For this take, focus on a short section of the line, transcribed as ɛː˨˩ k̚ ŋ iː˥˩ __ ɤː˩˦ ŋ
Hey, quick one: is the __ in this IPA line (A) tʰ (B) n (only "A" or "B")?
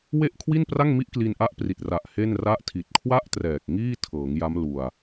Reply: A